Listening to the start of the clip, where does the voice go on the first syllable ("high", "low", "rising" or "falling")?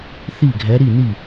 falling